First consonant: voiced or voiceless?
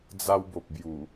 voiced